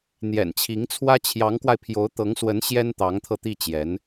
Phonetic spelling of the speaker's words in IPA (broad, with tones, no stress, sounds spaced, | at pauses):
n̪ j ɛ̰˨˩ n t͡ɕʰ i˧˥ ŋ t͡sʰ w ä˥ t͡ɕʰ j ɑ˧˥ ŋ k w a˧ ɪ̯ pʰ j o˧˥ ʊ̯ t̪ ɤ˧˥ ŋ s w ə˧˥ n ɕ j ɛ˥ n t̪ ɑ˧˥ ŋ t̪ʰ ɤ˧ t̪ i˥˩ t͡ɕ j ɛ˧˥ n